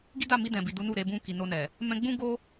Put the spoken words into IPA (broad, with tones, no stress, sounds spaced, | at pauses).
ɡ i˦ d a˦˨ m i˧ d ɛ̃˨ b i˨ d u˨˦ n u˦˨ ɾ e˧ b ũ˧ k i˨ n o˧ n ɛ˨ | m ɛ̃˧ ɡ͡b ũ˦ ɡ o˦